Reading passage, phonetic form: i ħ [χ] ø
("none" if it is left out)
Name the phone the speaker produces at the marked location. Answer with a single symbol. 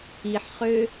χ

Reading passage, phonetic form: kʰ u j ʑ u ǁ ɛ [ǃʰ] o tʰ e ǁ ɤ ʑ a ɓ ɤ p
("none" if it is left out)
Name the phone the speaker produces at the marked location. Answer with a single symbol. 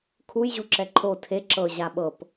ǃʰ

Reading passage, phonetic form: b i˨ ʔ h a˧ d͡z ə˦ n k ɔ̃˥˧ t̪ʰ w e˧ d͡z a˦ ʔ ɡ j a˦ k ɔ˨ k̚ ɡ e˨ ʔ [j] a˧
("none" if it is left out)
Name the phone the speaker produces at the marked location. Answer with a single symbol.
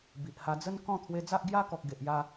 j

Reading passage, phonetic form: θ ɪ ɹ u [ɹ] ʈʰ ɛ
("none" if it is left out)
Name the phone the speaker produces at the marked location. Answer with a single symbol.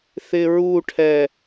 none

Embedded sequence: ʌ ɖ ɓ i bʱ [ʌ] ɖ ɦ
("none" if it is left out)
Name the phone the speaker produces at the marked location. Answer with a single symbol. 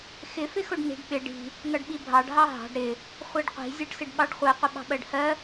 ɑ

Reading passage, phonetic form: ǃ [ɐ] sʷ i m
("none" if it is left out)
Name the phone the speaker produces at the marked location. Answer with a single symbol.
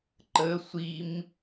ə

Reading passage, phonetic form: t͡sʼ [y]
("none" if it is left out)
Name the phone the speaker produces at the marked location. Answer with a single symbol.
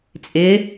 ɪ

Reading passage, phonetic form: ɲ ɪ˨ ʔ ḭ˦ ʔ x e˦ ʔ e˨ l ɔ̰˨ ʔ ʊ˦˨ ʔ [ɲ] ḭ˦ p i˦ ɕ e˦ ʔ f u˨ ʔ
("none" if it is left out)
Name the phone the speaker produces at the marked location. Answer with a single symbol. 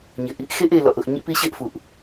ɲ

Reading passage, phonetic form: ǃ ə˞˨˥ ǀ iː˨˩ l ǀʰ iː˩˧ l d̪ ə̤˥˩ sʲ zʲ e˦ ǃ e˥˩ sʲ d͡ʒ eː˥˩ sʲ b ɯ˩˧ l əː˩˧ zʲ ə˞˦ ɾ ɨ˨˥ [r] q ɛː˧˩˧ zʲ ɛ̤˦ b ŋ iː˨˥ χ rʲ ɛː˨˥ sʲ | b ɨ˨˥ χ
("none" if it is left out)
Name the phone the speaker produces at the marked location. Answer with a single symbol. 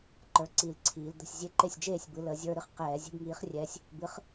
χ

